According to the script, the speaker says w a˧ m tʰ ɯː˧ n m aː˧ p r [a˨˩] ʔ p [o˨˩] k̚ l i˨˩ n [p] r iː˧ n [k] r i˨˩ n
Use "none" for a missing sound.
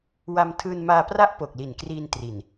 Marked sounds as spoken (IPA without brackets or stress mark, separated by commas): a˥˩, o˨˩, k, t